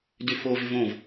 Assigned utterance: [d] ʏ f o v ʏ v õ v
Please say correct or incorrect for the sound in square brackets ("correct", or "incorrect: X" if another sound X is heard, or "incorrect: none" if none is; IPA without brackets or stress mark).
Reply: correct